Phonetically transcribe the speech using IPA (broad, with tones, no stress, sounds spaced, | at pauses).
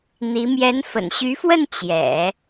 n̪ i˧˥ m j ɛ˧˥ n f ə̰˨˩ n ɕ y˧˥ f w ə˥˩ n t͡ɕ j ɛ̰˨˩˦